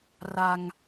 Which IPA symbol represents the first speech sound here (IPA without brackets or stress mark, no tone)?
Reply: r